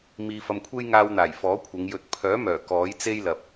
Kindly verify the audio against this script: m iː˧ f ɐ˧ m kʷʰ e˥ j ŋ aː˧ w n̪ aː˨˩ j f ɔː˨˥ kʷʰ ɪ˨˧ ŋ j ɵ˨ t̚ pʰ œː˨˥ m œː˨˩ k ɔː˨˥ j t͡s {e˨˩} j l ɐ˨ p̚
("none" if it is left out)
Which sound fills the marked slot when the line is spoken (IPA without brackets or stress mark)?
e˥